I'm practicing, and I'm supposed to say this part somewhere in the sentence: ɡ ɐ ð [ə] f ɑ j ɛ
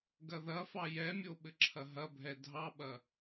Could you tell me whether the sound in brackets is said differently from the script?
yes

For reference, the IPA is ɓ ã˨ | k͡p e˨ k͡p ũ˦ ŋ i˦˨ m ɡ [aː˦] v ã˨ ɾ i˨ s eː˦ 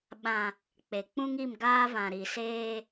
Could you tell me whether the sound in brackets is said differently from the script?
no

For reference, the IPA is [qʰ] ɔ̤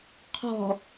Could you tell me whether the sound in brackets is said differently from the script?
no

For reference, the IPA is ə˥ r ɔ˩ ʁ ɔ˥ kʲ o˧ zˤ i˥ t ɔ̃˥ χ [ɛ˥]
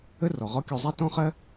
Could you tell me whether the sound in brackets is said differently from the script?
yes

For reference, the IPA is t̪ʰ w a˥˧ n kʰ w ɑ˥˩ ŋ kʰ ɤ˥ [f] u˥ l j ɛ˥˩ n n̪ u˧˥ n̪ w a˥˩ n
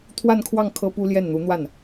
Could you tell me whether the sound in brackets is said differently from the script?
yes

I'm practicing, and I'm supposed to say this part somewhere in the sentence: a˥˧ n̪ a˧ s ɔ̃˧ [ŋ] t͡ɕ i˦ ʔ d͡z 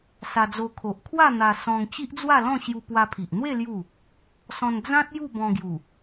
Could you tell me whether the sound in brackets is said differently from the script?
no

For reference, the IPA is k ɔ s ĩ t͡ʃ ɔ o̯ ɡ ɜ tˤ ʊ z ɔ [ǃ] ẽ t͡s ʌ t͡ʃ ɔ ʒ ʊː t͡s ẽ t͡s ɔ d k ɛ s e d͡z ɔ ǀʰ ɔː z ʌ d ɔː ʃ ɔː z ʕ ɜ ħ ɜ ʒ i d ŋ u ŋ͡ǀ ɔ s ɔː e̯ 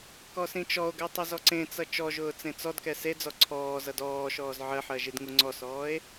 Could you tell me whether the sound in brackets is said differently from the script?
yes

